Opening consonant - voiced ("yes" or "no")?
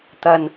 no